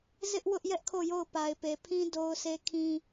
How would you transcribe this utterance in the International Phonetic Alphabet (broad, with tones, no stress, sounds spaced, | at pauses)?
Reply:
z ɪ˦ ʔ w ʊ˦ ʔ j ɛ˦ ʔ kʰ o˦˨ j o˦˨ ʊ̯ p a˨ ɪ̯ p e˨ pʰ ĩ˦ d o˦ ʊ̯ s e˦ kʰ ĩ˦